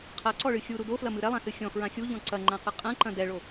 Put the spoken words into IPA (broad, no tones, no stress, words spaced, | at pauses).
qʰaǀɔɭɨ xʲuɾu doflɐmɨ ɾɛlˠãsɨ xʲɔ̃fɹã xʲuʎɔ̃ ǀɐŋ͡ǃãqɨ qʼɐ̃ǃɐ̃ dɛɭo